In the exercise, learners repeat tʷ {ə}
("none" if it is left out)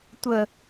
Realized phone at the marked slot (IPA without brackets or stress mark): ə